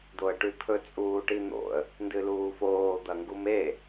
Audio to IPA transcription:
d̪ o ə̯ ʈ ʉ t̪ʰ ɵ t͡sʼ uː ʈ i n̪ o̰ ə̯ | n d ɨ l uː f oː d̪ ɐ ŋ ɡ u m e

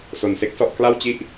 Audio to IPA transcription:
s o˧ n s e˥˩ k̚ s ɔ˥˩ ʔ k l a˥˩ w t͡ɕ i˥˩ ʔ

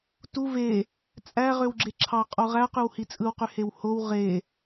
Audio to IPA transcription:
t u v e | t͡sʼ æ ʁ ø w ɡ͡ǁ e ǁʰ ɑ qʼ o ʁ æ q y w h i t͡sʼ ɯ w q y h e w h o w ʁ e

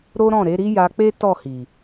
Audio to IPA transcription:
ɾ o˦ ɾ ɔ̃˦˨ ɾ e˨˦ ɾ i˦ j a˧ k͡p e˦ t ɔ˦˨ h i˨

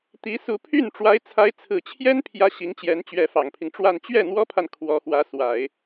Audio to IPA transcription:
t̪ i˧˥ s u˧˥ pʰ y˥˩ n ʈ͡ʂ w a˧˥ ɪ̯ t͡sʰ a˧˥ ɪ̯ t͡sʰ ɹ̩˨˩ t͡ɕʰ j ɛ˥ n pʰ j ä˥ ɕ i˧˥ ŋ t͡ɕ j ɛ˧˥ n t͡ɕ ɥ ɛ˧˥ f ɑ˨˩ ŋ pʰ i˦ ŋ ʈ͡ʂ w a˥˧ n t͡ɕ ɥ ɛ˥˩ n̪ w ɔ˥ pʰ a˨ n kʰ w ɔ˧˥ x w ä˧˥ s w a˨˩˦ ɪ̯

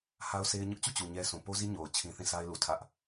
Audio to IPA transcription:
h a˦ ʊ̯ s e˦ ɪ̯ ɲ ʊ˦ ʔ t͡ɕ u˦˨ t͡ɕ u˨ ɲ ɛ˦ s ũ˨ p o˦ z i˦ ɲ o˨ ʊ̯ t͡ɕʰ ĩ˦ θ ĩ˦˨ s a˦ ɪ̯ l u˨ tʰ ä˦ ʔ

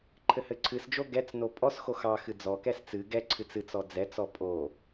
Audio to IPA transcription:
ǃʰ ɘ h ɘ ǀʰ ɨ s d͡ʒ o ɡ ɛ t͡s n o pʼ ɔ s x o x ɑ x ɨ d͡z ɔ k ɛ s t͡s ɨ ɡ ɛ ǀʰ ɨ t͡s ɨ t͡s ɔ d͡z ɛ t͡s ɔ pʼ o

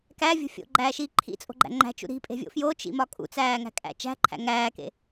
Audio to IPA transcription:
k æ vʲ o̤ fʲ o̰ ɡ͡ǃ æː ʃ iː ǃʰ ḭ t͡sʼ o̤ ɡ͡ǃ æ̰ ŋ͡ǃ æ̤ t͡ʃ ṵ ɾ i̤ pʼ e̤ vʲ o̰ f j o t͡ʃ ḭ m ɒ kʼ ṵ t͡s æː ŋ æ̤ kʼ æ̰ t͡ʃ æ̤ ǃʰ æ̰ ŋ æː k ḛ

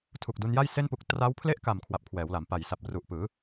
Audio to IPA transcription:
tʰ u˨˩ k̚ d u˧ n j a˥˩ j s e˥˩ n p u˦˥ k̚ t r a˦˥ w pʰ l e˥˩ ʔ k a˨˩ m kʰ w a˨˩ p̚ kʰ w ɛː˩˦ w l a˩˦ m p a˨˩ j s a˨˩ p̚ r u˨˩ ʔ p ɯː˩˦

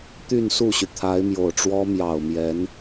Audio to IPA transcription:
t̪ y˥˧ n s u˥˩ ɕ y˩ t̪ʰ a˧˥ ɪ̯ m j o˨˩ ʊ̯ ʈ͡ʂ w ɔ˥ m j ɑ˨˩ ʊ̯ m j ɛ˧˥ n

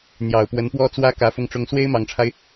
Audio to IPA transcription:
n̪ j ɑ˨˩ ʊ̯ p w ə˧˥ n p w ɔ˥ t͡s w ä˥ k ä˧˥ f ʊ˥˩ ŋ ʈ͡ʂ ʊ˥ ŋ s w e˥ ɪ̯ m ɑ˨˩ ŋ ʈ͡ʂʰ a˦ ɪ̯

